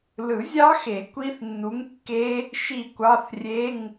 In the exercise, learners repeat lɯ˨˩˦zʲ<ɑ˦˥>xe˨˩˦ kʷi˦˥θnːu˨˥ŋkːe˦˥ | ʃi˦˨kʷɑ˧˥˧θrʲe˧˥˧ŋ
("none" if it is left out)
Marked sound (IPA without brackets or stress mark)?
ɑ˦˥